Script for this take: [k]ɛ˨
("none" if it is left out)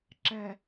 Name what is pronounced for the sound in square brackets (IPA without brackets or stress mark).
ǁ